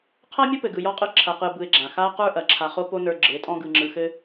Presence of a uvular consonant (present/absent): present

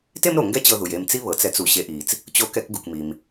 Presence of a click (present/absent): absent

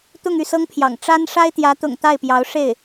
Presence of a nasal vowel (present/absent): absent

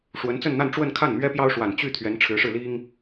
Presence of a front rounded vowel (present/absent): present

